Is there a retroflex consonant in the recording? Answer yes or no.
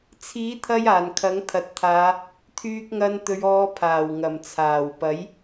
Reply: no